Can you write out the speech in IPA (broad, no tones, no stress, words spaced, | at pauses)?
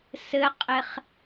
sɘqʼeχ